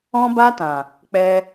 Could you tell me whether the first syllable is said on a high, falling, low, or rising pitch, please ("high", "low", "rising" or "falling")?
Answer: high